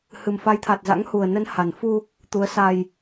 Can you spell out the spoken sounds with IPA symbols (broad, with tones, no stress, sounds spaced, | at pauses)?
h ɨ˨˩ m f a˨˦ j t̪ʰ a˨˩ t̚ z a̰˧˥ ŋ h u˨˩ ə̯ n ə˨˦ n h a˨˩ n f u˧ | t̪ u˨˦ ə̯ s a˧ j